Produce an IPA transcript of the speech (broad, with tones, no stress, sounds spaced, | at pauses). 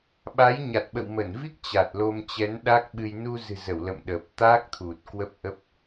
ɓ a˨˦ j ɲ a˨˩ t̚ ɓ ə̰˧˨ w m ə˧˩ n v i˦˥ k̚ t͡ɕ a˨˩ t̚ l o˧ m t͡ɕ ɛ˨˦ n ɗ a˦˥ k̚ ɓ ɨ˧ j n u˧ z ɨ̤˨˩ z ə˧˩ w l ə̰˧˨ m ɗ əː˨˩ p̚ t̪ aː˦˥ k̚ t̪ʰ u˨˩ t̚ k w ə˦˥ p̚ ʔ ə˦˥ p̚